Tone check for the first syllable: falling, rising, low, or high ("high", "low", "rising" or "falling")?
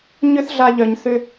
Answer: high